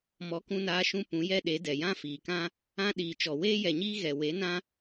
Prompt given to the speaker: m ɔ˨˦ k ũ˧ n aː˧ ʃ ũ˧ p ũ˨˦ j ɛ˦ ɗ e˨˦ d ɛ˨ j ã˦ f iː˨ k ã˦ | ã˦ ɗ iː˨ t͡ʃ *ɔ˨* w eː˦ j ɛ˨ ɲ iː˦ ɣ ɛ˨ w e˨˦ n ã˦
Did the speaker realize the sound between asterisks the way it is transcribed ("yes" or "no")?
yes